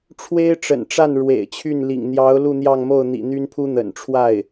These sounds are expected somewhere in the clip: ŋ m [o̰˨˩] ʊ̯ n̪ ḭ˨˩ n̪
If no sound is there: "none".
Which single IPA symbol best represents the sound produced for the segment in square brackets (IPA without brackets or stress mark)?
o˥˩